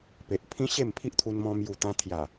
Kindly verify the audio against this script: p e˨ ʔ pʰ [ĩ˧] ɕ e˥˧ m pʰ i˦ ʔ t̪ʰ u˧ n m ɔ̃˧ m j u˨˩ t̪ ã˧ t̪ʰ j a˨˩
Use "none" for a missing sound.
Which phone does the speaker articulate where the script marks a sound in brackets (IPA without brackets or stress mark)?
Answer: ĩ˦